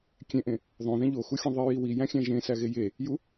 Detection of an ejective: absent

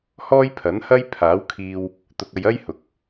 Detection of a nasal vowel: absent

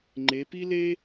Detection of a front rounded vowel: absent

